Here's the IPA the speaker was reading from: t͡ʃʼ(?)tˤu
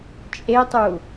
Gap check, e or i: e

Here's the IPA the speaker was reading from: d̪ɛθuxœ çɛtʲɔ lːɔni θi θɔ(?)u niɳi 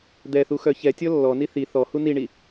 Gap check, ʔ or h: h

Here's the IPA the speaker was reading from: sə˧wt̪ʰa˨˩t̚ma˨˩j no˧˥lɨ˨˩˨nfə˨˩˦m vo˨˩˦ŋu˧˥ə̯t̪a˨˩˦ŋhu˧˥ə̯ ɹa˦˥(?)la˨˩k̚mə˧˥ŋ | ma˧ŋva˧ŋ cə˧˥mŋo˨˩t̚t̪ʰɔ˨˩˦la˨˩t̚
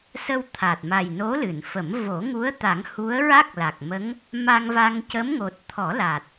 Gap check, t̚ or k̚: k̚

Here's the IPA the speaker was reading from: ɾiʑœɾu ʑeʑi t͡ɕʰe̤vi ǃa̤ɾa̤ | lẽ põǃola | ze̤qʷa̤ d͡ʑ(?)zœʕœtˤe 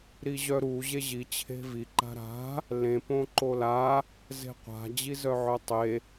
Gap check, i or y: i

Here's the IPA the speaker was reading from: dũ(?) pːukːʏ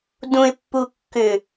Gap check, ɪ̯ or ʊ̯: ɪ̯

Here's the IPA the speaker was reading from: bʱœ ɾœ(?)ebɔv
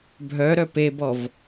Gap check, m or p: p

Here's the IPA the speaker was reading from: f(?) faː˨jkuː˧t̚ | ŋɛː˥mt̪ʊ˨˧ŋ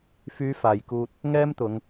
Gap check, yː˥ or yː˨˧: yː˨˧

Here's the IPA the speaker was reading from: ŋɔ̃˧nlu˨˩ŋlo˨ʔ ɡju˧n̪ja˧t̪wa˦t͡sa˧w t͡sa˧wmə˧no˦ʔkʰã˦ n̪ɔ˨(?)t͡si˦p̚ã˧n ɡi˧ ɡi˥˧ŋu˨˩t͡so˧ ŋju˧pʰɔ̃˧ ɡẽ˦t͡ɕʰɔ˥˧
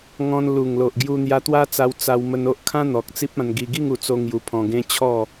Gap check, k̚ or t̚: k̚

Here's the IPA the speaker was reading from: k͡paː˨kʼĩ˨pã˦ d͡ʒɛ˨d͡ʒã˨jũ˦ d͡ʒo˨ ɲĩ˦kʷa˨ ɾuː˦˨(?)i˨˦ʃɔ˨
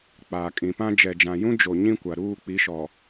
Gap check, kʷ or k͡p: k͡p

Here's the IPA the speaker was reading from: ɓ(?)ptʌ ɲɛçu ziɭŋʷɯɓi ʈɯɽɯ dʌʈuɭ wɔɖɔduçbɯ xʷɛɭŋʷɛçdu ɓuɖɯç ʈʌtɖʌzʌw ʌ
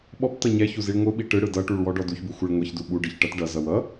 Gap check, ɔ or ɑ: ɔ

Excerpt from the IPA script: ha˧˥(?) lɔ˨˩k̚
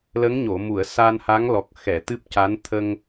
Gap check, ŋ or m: ŋ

